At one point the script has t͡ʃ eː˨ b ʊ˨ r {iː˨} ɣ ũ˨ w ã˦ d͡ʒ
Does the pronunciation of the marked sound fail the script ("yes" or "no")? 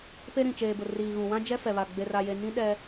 no